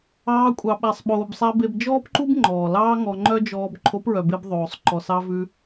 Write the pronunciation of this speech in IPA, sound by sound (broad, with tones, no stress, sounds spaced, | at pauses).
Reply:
ɑː˧ kʷʼ ɑ˨ ɓ æ˨ sˤ ɓ oː˨ b sˤ æ˧ b e˧ b d͡ʒ ɔː˦ p ǃ u˦ b ŋ͡ǃ ɔː˨ l ɑː˦ ŋ ɔ˧ ŋ͡ǃ œ˦ d͡ʒ ɔː˧ b ǃʰ o˨˦ p ɹ œ˨ b e˧ b ðˤ oː˨ sˤ ǃ ɔ˨ s ɑ˧ v ʉ˧